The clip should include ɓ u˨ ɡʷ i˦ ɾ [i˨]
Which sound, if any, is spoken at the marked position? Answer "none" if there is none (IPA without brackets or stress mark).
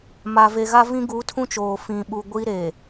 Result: e˨